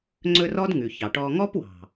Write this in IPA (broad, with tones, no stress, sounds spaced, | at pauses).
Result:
ŋ͡ǀ ɵ˧ r ɔ˦ d ŋ ʉ˨ ç ɑ˨ ʈ ɔ˧ ŋ ɔ˦ p w ɑ̤˨